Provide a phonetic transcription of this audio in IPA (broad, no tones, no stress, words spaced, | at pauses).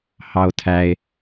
hɑo̯tʰæe̯